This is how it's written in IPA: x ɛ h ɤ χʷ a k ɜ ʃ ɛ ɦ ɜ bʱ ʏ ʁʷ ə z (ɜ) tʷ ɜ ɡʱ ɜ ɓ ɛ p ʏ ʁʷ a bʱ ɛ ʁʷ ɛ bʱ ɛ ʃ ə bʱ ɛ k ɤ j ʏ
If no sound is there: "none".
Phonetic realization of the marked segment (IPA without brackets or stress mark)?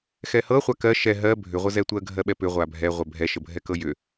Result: ɛ